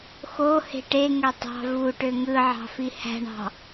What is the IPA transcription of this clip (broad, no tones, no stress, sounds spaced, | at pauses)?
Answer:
x o h e̤ ʈ e ŋ ø tˤ ɑ̤ v u ʈ ø ŋ ɯ ʕ ɑ̤ f i h æ̤ ɳ ɑ̤